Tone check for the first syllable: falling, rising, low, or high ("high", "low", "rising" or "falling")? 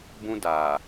high